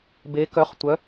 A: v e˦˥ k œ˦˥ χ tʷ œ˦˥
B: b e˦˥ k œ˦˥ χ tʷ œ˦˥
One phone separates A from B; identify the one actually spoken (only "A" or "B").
B